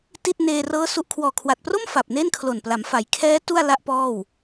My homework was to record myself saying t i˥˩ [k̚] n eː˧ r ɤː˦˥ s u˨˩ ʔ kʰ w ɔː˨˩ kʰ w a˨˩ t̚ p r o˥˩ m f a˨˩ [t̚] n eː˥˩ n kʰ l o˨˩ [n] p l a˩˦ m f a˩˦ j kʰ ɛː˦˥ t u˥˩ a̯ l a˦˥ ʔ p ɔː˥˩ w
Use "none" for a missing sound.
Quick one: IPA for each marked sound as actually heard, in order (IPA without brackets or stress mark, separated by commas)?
t̚, p̚, n